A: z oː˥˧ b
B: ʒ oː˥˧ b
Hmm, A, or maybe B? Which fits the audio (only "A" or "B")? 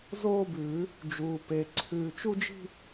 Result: A